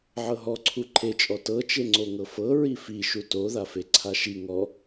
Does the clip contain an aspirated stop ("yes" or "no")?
yes